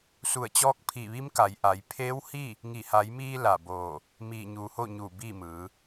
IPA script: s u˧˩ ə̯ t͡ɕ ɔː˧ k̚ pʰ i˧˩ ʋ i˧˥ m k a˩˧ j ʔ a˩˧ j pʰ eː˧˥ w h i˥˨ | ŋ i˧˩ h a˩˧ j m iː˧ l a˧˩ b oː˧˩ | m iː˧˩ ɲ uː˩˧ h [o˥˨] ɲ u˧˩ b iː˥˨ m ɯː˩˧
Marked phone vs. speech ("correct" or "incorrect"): correct